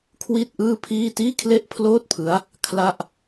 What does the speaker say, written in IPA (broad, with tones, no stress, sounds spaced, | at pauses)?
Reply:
kʰ w i˥˩ t̚ ʔ ɯː˥˩ pʰ iː˥˩ t iː˥˩ kʰ l e˥˩ ʔ pʰ l oː˥˩ t̚ pʰ ɯ˦˥ a̯ | kʰ l a˥˩ ʔ